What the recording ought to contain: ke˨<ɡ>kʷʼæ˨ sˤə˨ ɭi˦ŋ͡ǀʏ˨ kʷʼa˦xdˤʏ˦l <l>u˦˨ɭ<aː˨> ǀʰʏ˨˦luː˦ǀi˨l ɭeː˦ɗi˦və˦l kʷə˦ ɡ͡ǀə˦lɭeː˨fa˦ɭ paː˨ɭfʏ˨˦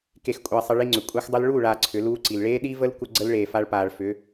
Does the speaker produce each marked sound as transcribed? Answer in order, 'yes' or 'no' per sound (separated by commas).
no, no, yes